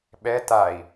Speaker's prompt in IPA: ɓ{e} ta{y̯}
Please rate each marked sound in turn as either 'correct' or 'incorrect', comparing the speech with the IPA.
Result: incorrect, incorrect

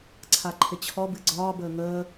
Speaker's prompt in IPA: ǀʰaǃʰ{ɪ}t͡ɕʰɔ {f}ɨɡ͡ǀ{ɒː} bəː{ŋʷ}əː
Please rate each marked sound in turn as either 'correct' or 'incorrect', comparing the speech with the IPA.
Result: correct, incorrect, correct, incorrect

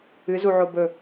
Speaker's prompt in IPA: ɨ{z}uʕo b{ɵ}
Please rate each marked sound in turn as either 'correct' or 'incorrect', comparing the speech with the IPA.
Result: correct, correct

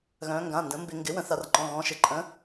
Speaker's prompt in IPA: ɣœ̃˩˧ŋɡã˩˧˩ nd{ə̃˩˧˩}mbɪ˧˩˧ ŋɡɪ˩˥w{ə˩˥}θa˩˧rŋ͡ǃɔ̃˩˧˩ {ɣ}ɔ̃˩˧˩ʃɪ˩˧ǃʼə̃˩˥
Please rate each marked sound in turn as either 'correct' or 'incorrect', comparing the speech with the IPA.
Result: incorrect, incorrect, correct

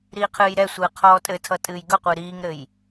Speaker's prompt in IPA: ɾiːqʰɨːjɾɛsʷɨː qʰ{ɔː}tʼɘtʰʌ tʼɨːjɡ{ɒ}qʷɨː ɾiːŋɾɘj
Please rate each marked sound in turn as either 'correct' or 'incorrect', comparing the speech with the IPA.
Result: correct, incorrect

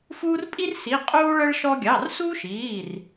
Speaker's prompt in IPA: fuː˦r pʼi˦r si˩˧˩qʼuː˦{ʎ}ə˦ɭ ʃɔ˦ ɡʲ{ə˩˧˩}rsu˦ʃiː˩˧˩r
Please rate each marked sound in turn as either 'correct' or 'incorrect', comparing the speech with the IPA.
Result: incorrect, incorrect

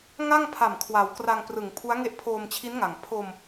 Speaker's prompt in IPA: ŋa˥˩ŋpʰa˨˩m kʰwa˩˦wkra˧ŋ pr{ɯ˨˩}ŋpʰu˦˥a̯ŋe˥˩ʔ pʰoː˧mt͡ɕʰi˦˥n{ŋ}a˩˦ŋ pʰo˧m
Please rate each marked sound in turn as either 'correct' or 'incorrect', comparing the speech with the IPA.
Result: correct, correct

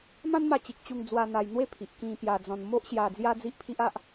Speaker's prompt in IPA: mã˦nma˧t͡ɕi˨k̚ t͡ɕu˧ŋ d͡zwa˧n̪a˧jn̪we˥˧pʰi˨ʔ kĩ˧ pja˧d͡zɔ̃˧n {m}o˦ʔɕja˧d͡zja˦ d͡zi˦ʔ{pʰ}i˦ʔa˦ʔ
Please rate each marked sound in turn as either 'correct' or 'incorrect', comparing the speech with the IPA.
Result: correct, correct

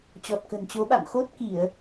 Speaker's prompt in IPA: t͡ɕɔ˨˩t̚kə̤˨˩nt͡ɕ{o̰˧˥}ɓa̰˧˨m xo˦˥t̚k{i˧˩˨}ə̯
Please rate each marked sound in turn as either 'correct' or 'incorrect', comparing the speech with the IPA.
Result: incorrect, correct

